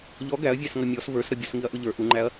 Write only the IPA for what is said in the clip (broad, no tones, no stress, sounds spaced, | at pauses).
ʎ ɔ ɡ æ ɐ̯ vʲ æ s ŋ ʌ mʲ ɔ s v ə˞ s ɾ ʌ bʲ ɔ s ŋ i ɐ̯ ʔ ʊ ʎ ə˞ ʔ u ŋ͡ǃ æ ɐ̯